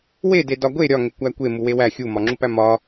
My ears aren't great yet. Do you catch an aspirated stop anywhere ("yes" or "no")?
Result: no